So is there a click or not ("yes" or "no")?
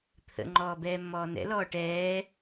yes